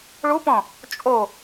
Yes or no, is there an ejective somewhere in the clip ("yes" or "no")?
yes